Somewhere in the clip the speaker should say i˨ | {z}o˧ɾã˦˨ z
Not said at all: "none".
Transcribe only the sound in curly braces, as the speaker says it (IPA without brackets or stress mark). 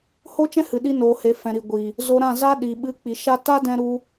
z